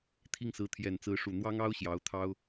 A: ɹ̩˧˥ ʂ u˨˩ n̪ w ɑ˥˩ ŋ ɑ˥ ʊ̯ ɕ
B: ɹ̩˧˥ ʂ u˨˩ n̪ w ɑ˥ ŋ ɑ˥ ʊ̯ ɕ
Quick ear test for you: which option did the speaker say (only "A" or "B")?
B